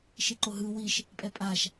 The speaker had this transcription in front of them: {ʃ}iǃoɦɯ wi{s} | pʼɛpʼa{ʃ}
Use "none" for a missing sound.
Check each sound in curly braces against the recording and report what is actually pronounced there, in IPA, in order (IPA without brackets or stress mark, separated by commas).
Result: ʃ, ʃ, ʃ